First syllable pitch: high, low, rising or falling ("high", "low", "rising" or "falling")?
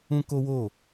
high